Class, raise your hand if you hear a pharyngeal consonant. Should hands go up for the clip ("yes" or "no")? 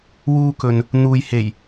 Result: no